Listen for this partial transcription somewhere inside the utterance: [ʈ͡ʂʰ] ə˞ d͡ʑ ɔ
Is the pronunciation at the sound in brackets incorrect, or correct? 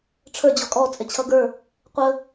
correct